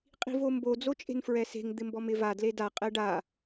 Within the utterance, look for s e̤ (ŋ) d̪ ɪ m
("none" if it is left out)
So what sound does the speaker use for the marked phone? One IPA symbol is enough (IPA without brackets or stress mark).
ŋ